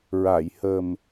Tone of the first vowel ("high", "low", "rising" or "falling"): low